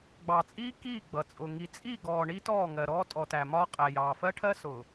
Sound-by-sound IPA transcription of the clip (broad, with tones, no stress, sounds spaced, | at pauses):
ɡ͡b ɑ˨ t͡sʼ iː˦ k iː˦˨ ɡ͡b ʌ˨ t͡sʼ ʊ˨ ŋ i˨ t͡sʼ i˦˨ ɡ ɔː˨ ɳ i˦ t ɔː˦˨ ŋ ɜ˨ ɾ ɔː˦ tʼ ɔ˨ t æ˨ m ɒː˦ qʼ æ˨ j ɑː˨ f ɜ˦ ʈʰ ɜ˦ s ʊː˨